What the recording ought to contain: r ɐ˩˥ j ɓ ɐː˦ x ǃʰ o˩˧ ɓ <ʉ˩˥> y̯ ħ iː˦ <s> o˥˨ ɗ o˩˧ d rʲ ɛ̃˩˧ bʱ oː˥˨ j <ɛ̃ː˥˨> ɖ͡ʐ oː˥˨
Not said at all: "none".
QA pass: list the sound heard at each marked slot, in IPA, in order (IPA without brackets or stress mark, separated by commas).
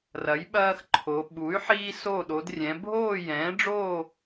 u˩˥, s, ɛ̃ː˩˥